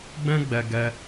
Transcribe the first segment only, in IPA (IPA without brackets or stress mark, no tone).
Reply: ɡ͡b